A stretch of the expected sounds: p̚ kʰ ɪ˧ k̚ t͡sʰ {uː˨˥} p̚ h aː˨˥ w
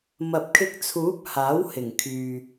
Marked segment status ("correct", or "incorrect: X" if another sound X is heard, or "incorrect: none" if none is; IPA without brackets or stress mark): correct